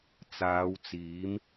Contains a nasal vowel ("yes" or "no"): no